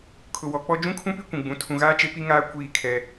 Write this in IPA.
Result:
kʰ ʊ˨ w ɔ˨ k͡p ɔ˦ d͡ʒ ũ˦ kʰ ũ˦ p i˦ kʷ ũ˨ ɡ͡b ũ˨˦ tʰ ũ˨ ɣ aː˦ t͡ʃ e˦ p i˦ ŋ aː˦ kʷ iː˦˨ kʰ ɛ˦

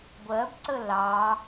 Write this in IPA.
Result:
ɡʷ ɜ b ǀ ə l ɑ

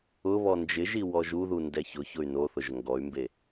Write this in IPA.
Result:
ʊ β ɔ n d͡ʒ ɪ ʒ i w ɔ ʒ u ð u n d ɛ ç ʊ ç ʊ y̯ n o θ ʊ ʒ ŋ ɡ ɔ y̯ m b e

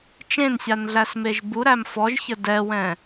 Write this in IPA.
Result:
t͡ʃ ẽ n sʲ a n ɮ æ s m e ʒ b u ɾ æ m f ɔ ʒ ç ə d ɛ w ɛ̃

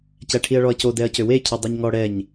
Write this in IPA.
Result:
c æ ʈʰ i ɐ̯ ɭ ɔ ɐ̯ c o d ɛ ɐ̯ c ø w e cʰ i dˤ œ ɲ ŋ ɔ ɽ ɛ ɲ

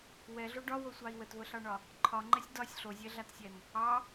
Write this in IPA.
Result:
w ɛ ɮ o ɖ ɒ w o sʷ ɑ i̯ w ə t v ə ɬ ɑ ɳ ɒ | ǃʰ ɒ ŋ͡ǃ ɛ sʲ d ɒ sʲ ɬ o zʲ ɛ ɮ a t sʲ ɛ n | ɑ

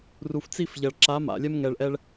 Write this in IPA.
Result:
r u˨ f t͡s i˦˨ f ʎ ɐ˨ ɭ ǁ a˨˦ m a̰˨ lʲ ɛ˧ m ŋ ɛ˨ ɭ ʔ ɛ˧ ɭ

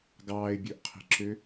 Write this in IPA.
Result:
ɡ ɑː ɪ̯ bʲ ɵ ʔ qʰ i̤ ǁ ø

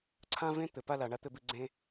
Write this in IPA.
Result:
ǀʰ ã˥ v ẽ˥ t̪ ɘ˨ p a˦ l a˨ ɳ a˥ t̪ ɘ˦ b ɨ˦ ɡ͡ǀ ẽ˥

